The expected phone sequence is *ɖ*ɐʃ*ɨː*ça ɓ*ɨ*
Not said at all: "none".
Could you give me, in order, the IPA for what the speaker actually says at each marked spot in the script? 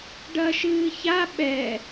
ɖ, ɨː, ɛ

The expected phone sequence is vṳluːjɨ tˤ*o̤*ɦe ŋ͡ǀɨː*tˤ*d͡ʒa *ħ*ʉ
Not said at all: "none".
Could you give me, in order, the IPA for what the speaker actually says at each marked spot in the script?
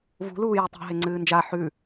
o̤, n, ħ

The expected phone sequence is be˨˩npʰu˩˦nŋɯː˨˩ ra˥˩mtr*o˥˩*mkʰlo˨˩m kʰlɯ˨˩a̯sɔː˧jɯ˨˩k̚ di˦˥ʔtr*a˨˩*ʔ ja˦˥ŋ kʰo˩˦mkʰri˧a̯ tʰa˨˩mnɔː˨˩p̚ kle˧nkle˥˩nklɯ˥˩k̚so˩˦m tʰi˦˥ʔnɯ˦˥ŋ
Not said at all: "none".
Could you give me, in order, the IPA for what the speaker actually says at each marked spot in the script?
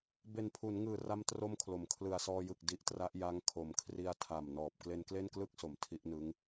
o˥˩, a˦˥

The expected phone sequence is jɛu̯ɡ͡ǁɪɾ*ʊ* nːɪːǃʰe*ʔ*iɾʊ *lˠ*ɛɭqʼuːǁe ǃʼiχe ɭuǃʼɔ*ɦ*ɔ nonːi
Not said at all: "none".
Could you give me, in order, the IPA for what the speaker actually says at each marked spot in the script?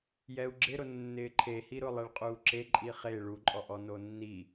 ʊ, h, lˠ, ʔ

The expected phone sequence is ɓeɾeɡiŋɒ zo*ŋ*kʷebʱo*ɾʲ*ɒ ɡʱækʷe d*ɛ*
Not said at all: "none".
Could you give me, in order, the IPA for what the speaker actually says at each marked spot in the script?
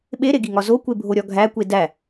none, ɾʲ, æ

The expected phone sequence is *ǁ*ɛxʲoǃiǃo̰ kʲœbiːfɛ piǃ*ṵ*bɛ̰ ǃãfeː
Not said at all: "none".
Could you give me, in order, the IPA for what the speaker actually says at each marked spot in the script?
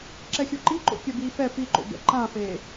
ǁ, o̰

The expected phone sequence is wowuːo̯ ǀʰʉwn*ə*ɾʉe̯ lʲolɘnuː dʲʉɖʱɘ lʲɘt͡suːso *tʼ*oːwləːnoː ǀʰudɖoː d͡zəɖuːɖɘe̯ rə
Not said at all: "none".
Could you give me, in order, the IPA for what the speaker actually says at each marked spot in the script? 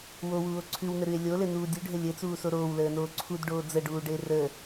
ə, ɾ

